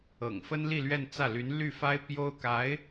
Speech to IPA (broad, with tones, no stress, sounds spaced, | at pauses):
ɤ̰˨˩ ŋ f ə˥ n l i˥˧ l ɥ ɛ˥˧ n t͡s ä˥˩ l y˧˥ n l y˥˩ f a˥ ɪ̯ p j o˥ ʊ̯ k a˧˥ ɪ̯